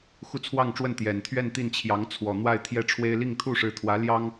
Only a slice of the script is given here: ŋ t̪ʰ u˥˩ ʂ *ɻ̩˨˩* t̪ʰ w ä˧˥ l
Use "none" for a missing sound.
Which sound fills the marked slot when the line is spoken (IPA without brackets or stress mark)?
ɻ̩˧˥